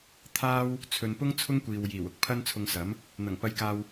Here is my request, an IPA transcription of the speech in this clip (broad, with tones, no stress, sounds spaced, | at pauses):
t̪ʰ aː˥ w | t͡sʰ ɵ˨ n p ʊ˥ ŋ t͡sʰ ʊ˥ ŋ kʷ iː˨ w j iː˨˩ w ʊ˧ k̚ pʰ ɐ˥ n t͡sʰ ʊ˧ ŋ s ɐ˨˥ m | n̪ ɐ˨˩ ŋ p ɐ˧ j k aː˧ w